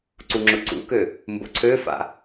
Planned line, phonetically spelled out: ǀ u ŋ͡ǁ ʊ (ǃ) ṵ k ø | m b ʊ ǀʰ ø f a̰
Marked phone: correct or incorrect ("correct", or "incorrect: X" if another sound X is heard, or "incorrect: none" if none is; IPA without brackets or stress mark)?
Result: incorrect: ǀ